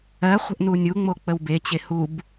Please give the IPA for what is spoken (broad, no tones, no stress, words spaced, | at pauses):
ɜ χʷə̤ʔnunʲu ŋ͡mok͡pəwbe t͡ɕehub